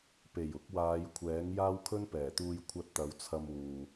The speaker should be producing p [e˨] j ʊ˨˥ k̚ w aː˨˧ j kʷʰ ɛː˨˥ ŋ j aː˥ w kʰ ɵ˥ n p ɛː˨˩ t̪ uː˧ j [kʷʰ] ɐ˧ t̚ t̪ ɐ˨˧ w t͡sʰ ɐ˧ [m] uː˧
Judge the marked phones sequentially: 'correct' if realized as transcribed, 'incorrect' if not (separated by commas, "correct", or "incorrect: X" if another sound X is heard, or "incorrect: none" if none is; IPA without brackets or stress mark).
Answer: incorrect: e˨˩, correct, correct